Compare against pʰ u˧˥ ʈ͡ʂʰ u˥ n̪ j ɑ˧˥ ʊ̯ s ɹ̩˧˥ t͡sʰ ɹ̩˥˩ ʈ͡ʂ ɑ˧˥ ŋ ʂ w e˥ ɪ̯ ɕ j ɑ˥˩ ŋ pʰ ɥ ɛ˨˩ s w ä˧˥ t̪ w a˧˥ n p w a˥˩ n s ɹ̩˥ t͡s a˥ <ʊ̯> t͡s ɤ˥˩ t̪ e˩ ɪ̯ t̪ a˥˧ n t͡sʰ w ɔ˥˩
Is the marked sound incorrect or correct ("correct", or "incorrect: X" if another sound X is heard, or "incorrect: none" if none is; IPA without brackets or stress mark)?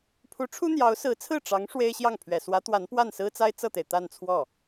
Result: incorrect: ɪ̯